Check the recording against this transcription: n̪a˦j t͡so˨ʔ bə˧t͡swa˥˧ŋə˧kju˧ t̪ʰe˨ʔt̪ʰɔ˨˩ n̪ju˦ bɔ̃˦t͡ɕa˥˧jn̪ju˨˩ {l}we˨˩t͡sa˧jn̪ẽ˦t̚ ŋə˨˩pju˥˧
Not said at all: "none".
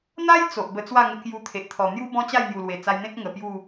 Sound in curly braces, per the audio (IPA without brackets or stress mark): l